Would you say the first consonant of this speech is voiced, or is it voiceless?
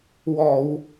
voiced